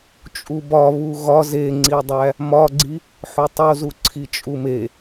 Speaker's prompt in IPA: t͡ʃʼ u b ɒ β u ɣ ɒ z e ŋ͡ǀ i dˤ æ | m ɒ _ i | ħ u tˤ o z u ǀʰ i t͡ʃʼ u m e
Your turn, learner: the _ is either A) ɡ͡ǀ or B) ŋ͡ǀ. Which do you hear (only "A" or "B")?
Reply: A